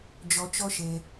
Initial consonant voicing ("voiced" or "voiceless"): voiced